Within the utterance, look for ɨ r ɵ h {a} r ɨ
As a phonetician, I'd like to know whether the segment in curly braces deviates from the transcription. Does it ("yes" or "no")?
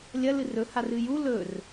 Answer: no